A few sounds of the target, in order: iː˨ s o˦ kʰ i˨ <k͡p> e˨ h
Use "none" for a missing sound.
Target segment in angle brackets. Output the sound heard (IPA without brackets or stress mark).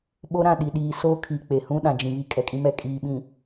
k͡p